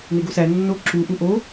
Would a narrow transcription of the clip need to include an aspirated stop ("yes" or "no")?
no